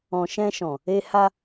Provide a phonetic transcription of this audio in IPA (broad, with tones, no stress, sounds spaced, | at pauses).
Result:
ɔ̃˨ ʃ ɛ̃˧ ʃ ɔ̃˨ | e˧ h a˧